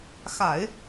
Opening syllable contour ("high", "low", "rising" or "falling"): low